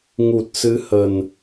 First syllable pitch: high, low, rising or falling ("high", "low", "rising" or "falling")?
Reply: low